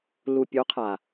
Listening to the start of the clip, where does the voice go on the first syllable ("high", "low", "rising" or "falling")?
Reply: low